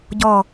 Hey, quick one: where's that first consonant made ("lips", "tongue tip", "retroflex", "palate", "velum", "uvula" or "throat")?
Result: palate